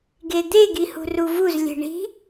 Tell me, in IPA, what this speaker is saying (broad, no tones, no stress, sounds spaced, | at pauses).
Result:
ɡ e d̪ e ɡ i h ṳ r u v u z lʲ e̤ ɳ i̤